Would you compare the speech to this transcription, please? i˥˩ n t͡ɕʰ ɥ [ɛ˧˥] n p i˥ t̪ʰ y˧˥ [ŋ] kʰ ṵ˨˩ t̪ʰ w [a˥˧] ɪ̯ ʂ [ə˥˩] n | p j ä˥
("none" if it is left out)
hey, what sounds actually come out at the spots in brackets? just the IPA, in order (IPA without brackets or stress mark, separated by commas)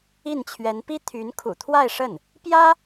ɛ˧˥, n, a˥˧, ə˥˩